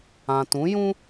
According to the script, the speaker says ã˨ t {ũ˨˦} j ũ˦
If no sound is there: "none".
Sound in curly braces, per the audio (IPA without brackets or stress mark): ũ˨˦